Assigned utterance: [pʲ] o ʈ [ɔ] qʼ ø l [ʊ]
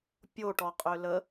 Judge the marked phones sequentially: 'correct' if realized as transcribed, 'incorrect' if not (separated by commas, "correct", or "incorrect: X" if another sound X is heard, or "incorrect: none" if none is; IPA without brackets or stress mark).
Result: correct, correct, incorrect: ə